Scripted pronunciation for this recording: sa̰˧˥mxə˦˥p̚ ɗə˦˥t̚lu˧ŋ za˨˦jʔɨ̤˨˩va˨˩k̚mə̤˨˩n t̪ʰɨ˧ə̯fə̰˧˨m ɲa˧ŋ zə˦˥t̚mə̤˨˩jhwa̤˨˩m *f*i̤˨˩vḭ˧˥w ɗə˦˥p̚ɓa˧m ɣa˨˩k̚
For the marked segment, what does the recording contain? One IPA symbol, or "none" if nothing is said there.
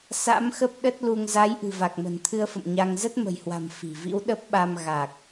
f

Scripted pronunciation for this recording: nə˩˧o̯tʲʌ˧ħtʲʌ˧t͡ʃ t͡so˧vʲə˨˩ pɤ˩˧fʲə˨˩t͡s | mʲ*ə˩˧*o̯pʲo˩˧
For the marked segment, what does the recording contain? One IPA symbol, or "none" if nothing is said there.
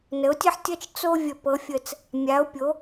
a˩˧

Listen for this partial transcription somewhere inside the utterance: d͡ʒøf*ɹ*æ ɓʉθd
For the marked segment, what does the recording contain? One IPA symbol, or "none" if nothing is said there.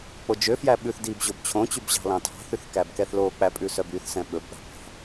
j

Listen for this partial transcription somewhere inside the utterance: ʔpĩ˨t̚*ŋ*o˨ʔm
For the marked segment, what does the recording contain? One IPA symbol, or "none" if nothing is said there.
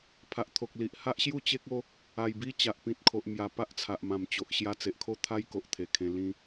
kʰ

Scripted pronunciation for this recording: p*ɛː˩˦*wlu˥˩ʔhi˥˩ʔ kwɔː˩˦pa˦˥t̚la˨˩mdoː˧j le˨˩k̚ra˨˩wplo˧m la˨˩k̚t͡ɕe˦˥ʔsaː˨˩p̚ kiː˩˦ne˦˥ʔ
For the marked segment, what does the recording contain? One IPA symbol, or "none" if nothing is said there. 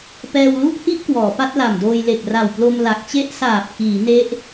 ɛː˧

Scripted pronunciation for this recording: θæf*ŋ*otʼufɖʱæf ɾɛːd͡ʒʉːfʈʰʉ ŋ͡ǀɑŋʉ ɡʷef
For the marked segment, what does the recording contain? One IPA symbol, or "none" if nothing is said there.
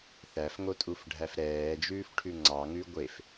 ŋ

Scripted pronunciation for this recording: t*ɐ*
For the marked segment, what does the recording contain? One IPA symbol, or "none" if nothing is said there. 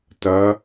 ɐ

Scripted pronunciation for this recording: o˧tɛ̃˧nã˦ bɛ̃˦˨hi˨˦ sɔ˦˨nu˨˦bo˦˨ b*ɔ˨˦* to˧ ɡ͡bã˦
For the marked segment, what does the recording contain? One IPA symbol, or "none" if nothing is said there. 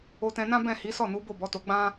ɔ˨˦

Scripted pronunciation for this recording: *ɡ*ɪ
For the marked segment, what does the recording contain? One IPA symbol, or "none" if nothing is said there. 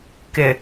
k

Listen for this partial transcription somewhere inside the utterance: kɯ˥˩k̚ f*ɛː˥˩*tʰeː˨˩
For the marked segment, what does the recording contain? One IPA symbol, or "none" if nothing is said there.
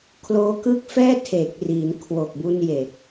ɛː˥˩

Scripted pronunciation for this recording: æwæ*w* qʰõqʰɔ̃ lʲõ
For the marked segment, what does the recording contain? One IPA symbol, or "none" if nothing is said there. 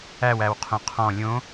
w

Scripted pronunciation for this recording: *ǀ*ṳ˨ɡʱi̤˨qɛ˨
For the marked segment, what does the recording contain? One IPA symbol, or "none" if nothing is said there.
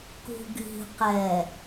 k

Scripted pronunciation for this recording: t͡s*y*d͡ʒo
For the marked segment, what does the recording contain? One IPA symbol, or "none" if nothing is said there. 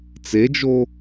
e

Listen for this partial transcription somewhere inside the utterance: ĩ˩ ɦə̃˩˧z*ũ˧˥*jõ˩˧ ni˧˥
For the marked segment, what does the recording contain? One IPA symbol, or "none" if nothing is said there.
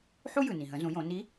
ũ˩˧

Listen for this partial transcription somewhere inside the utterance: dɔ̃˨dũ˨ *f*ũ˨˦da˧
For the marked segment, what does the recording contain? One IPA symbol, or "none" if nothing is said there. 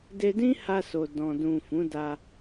f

